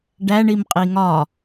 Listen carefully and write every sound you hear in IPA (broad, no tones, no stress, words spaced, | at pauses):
ɖæɳim qʼiŋɒ